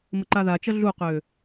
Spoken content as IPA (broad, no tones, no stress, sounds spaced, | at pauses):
m ə ǃ a ð a t͡ʃ ʌ ɮ u q ø